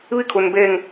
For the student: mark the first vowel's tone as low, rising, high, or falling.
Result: falling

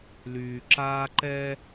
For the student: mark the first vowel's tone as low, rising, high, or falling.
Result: low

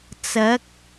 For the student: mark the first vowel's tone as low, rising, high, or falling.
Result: rising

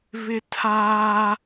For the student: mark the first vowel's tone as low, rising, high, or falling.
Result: high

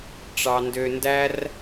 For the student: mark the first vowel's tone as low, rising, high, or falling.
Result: high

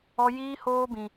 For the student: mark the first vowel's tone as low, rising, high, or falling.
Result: high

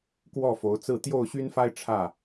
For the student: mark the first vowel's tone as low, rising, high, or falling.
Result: falling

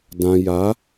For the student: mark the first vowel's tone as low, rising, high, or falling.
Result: low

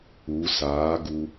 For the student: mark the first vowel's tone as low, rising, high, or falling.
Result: rising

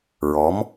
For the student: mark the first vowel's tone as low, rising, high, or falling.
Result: rising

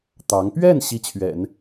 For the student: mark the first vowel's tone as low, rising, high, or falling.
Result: rising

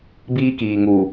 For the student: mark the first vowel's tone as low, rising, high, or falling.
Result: high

